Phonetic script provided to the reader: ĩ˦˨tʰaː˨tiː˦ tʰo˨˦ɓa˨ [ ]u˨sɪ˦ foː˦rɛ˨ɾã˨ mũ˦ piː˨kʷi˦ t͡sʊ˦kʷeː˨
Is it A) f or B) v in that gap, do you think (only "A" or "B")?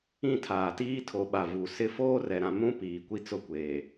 B